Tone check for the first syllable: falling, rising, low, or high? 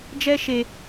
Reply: high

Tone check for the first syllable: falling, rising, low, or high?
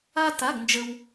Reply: high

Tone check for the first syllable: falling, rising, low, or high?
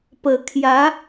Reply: low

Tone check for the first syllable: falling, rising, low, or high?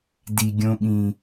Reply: low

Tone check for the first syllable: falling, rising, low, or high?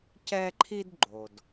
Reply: high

